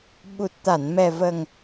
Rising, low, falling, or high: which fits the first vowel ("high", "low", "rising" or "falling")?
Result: low